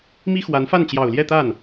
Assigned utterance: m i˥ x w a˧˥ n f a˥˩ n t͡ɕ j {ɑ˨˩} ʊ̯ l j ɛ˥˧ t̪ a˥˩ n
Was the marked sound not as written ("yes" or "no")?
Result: no